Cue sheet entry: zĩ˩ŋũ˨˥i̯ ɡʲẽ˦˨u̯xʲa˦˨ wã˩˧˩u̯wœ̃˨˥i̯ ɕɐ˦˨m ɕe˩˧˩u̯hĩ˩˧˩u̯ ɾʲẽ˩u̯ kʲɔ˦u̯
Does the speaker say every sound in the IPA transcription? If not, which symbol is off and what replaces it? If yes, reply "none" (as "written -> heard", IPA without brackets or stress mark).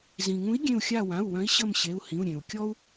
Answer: ɐ˦˨ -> ə˦˨